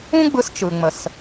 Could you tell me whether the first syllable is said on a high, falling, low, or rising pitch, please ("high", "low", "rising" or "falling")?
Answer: high